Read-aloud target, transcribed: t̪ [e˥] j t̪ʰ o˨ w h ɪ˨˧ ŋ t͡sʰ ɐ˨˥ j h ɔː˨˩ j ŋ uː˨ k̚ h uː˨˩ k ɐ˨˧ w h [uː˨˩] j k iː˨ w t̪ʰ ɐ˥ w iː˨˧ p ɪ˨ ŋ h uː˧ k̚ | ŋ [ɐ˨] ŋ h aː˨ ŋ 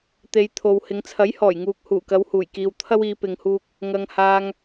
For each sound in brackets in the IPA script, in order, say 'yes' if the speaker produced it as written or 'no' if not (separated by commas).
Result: no, yes, yes